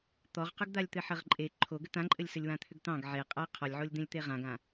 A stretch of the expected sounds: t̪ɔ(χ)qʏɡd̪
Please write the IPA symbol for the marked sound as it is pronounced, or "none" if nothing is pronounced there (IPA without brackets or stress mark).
ʁ